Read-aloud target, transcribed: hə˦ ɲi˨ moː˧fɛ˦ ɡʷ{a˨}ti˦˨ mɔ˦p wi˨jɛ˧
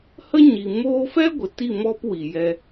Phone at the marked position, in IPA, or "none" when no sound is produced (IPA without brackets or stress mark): ə˨